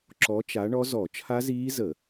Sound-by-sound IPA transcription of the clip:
ǁ ɔ˨˦ t͡ʃ a˨˦ ɳ ɔ˦˥ z ɔ˧˩˧ t͡ʃʰ a˦˥ z iː˦˥ z ə˧˩˧

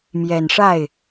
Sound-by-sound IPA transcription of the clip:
m j ɛ˨˩ n ʂ a˥˩ ɪ̯

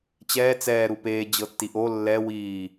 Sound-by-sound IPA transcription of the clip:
t͡ɕ ɛː t͡s ɛː ɾ u p eː d͡ʑ ɤ tː i ʔ o lː ɛ w iː

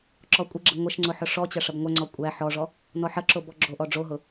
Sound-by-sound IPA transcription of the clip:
ǁ ɔ kʷʼ ɪ ɡ͡ǁ ɪ ŋʷ ɐ ʃ ŋ͡ǀ ʊ ħ ʊ ʂ ɔ t͡ɕ ɐ ʂ ɐ b ŋʷ æ ŋ͡ǀ ɔ kʷʼ æ ħ ɔ ʐ ɔ | n ɔ ħ ɐ ǁ o b ɔ ɡ͡ǁ o ʔ ɔ ɖ͡ʐ o ɦ ʊ

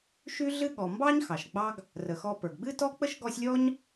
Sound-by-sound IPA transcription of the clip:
ʃ y˦ ɮ ɨ˦ ɠ ɔ˩ m b ɑ˥ ɲ x ɑ˩ ʃ ɡ͡b ɑ˦ ɡ | r ə˩ x ɔ˨ p ə˞˩ ɡ ɡ͡b ɨ˥ t ɔ˥ k͡p ə˥ ʃ ɡ ɔ˦ sʲ lʲ ɔ˥ ɲ

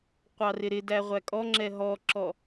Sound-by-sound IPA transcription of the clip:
qʷ ɑ r ɪ ɾ ɪ d æ ʁʷ æ kʼ ɔ ŋ͡ǁ ɛ ɦ ɔ ǁ ɔ

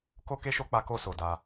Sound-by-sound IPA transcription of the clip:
k o˦ k e˦ ʃ o˦ k͡p a˧ k o˧ s o˨ d a˧

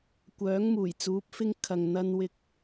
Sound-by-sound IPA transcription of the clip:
kʷ œː˨˥ ŋ m uː˨˩ j t͡s uː˨˥ p̚ f ɪ˧ ŋ kʰ ɐ˨ ŋ n̪ ɐ˧ n w ɪ˧ k̚

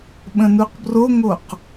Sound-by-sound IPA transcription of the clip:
ɓ ə̃ n u q b r o ŋ o q

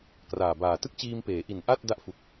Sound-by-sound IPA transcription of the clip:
k r aː˨˩ b aː˨˩ t ɯ˥˩ k̚ t͡ɕ iː˧ m p eː˩˦ ʔ i˨˩ n ʔ a˥˩ t̚ d a˦˥ ʔ f u˨˩ k̚

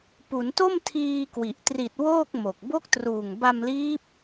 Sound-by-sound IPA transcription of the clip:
p u˩˦ n t o˥˩ m tʰ iː˧ k w i˨˩ ʔ t r i˨˩ t̚ w oː˥˩ k̚ m o˨˩ k̚ b o˦˥ k̚ t r uː˨˩ ŋ b a˧ m l iː˦˥ p̚

